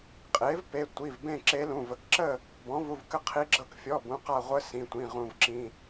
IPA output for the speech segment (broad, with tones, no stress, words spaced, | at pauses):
qʼe˩˥vpe˩˧˩ tʷi˩˧˩v bẽ˥˨ǁe˧˥lũ˩˧˩ və˩˥kǁə˥˨ | bɔ̃˩˥vu˩˧˩vkə˧˥ qʰi˧˥ɡ͡ǁɤ˥˨k fʲɔ˩˧˩ bũ˩˥qa˥˨ ʁʷə˧˥ sĩ˩˧˩tʷĩ˩˧˩ ʁũ˧˩vǁĩ˩˧˩